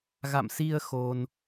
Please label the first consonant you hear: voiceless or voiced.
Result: voiced